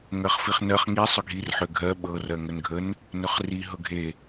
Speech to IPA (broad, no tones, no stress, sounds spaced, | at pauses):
ŋ ɜ χ f i χ n ɜ χ ŋ i sˤ ʏ ɡʱ i r ħ ʏ ɡʱ ɜ ɓ ɤ r ɜ ŋ ə n ɡʱ ə n | n ʏ χ r i ɦ ɤ ɡʱ e